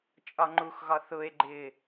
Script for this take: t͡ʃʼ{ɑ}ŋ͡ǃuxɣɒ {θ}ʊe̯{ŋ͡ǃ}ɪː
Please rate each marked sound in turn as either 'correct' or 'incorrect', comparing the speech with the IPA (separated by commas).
incorrect, correct, incorrect